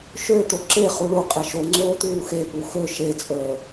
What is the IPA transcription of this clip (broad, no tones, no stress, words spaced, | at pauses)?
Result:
ʃø t̪oǁe χuɭu qʼeʃoŋ͡ǀoː t̪uːxe puxø ʃet͡sʼəː